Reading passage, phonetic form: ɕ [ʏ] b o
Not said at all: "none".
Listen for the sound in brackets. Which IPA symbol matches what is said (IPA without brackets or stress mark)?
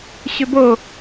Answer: ʏ